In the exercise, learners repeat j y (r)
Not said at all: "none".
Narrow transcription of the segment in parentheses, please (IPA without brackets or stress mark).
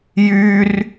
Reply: r